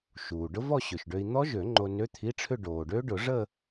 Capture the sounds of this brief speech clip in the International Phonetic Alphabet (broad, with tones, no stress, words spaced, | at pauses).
ʃuː˩ɖʊ˦˥ vɔ˥˧ ɕʏ˩ʃɖø˧i̯ n̪ɔ˦˥ ʒø˨˩˦ ŋ͡ǃo˧nø˧˥˧t̪ʰi˧˥˧ʈ͡ʂʰʏ˥˧ ɖoː˩ ɖø˦˥ɖʊ˨˩˦ ʐə˥˧